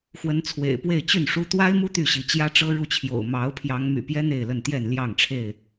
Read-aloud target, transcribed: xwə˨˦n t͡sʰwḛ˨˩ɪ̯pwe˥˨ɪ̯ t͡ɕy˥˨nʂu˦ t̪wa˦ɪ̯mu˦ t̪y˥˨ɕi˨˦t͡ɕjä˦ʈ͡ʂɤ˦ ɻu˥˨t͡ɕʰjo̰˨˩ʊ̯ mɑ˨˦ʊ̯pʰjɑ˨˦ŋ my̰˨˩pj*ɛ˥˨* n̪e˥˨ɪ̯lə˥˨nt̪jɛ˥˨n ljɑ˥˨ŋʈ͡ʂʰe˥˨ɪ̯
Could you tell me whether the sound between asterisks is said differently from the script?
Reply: yes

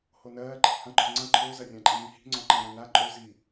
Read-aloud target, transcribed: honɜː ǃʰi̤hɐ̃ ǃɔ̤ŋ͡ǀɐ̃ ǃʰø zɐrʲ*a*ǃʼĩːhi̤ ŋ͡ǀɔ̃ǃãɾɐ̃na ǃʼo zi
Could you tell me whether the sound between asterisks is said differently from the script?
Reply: yes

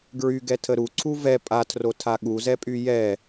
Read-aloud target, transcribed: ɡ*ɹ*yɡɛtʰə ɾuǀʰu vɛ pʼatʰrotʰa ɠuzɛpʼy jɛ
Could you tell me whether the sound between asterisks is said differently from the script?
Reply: no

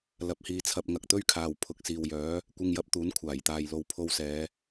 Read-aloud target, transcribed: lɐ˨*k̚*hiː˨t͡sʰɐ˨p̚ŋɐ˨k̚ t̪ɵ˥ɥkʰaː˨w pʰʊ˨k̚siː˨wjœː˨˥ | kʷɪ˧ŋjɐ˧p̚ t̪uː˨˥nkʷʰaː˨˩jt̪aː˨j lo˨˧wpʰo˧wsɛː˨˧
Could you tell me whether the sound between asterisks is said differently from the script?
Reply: yes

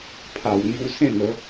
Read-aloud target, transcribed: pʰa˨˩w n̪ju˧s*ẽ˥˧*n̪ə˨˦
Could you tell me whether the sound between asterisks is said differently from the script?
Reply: no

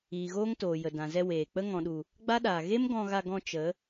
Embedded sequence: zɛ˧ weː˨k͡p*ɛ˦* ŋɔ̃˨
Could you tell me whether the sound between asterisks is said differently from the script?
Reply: yes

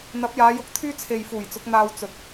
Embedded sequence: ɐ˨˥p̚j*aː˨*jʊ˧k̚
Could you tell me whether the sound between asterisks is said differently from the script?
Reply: yes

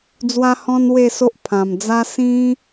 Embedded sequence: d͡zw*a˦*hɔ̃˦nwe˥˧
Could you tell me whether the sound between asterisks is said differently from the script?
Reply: no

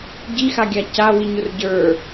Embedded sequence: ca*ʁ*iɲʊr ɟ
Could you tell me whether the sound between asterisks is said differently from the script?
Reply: yes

